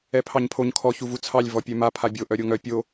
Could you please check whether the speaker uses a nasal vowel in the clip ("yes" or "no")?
no